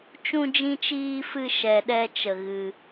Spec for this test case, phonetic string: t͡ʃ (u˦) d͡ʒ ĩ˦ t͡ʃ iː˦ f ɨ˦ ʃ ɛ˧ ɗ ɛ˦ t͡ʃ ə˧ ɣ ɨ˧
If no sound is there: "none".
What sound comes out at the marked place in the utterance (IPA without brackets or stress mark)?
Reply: ũ˦